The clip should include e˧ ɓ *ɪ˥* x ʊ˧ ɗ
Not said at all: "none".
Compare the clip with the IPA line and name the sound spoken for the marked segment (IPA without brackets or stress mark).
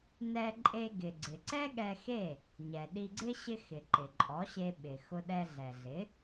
ɪ˩